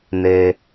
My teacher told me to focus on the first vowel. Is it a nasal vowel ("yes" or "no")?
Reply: no